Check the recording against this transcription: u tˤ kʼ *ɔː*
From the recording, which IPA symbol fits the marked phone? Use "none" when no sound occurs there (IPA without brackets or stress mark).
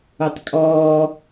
ɔː